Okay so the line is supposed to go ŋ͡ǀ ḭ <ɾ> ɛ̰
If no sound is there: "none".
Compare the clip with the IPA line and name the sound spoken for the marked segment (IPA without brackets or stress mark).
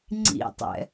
tˤ